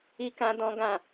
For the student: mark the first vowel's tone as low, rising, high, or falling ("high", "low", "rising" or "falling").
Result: high